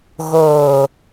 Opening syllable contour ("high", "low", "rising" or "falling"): low